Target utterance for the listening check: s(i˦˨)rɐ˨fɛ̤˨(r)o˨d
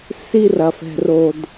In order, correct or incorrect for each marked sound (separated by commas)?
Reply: incorrect, correct